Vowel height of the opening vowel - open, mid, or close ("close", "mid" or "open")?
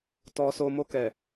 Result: mid